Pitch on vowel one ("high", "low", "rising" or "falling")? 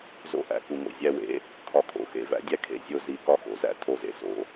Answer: high